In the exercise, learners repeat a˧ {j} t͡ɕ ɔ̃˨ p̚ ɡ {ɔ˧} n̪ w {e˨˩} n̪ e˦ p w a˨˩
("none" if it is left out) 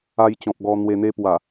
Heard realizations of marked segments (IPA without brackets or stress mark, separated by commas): j, ɔ˧, e˧